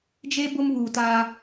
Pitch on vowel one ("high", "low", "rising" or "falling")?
high